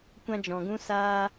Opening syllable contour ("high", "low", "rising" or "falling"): high